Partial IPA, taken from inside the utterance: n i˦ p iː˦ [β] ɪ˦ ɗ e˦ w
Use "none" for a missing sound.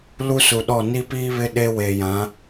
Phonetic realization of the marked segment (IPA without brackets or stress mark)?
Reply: β